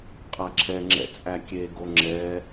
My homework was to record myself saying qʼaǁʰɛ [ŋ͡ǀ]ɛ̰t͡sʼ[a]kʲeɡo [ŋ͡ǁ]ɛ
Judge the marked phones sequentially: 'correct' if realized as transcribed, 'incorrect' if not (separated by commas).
incorrect, incorrect, correct